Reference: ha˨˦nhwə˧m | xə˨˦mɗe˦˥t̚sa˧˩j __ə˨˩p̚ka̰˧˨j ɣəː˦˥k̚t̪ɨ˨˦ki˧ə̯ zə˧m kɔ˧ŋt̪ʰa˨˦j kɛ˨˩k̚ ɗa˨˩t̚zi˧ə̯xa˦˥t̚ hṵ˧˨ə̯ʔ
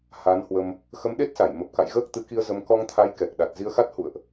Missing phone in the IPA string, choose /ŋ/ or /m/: m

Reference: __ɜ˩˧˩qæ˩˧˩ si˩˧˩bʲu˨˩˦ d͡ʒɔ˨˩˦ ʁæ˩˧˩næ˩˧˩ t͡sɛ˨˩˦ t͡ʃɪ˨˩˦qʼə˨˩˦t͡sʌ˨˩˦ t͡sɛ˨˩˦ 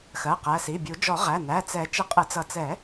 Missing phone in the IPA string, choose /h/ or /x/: x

